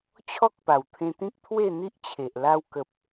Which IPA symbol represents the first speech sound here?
t͡ɕʰ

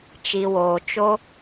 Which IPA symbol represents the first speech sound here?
t͡ʃ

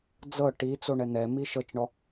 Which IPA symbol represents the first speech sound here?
d͡z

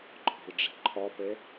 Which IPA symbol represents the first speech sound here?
ǃʰ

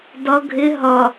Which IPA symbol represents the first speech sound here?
d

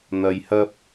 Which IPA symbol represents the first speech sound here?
n̪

